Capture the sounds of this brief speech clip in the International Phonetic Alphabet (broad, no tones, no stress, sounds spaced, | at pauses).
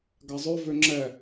ɡ a zˤ œ v ø ŋ͡ǁ ɛ